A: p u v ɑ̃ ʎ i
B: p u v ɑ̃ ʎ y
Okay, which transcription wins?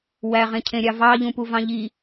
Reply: A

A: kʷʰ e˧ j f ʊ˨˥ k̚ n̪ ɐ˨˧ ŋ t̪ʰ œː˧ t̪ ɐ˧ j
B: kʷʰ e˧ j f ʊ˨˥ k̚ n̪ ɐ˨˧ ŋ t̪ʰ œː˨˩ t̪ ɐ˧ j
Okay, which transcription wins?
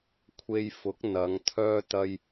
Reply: A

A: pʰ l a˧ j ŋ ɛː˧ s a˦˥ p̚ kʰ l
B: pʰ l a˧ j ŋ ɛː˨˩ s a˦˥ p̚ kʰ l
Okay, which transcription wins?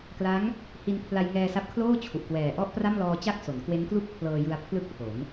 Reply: A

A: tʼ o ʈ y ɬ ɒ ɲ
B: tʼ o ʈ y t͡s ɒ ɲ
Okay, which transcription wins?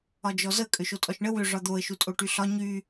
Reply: A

